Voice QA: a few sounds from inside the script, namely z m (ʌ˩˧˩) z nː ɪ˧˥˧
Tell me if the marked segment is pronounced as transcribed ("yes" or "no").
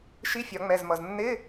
no